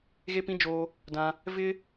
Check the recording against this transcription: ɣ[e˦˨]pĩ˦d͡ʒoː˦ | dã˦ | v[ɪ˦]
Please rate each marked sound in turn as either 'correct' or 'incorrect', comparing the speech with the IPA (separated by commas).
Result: incorrect, correct